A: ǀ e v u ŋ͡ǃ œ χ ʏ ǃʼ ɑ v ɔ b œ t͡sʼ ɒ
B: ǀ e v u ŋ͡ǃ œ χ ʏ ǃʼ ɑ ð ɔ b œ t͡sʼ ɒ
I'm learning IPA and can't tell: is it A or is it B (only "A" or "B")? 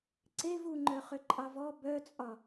A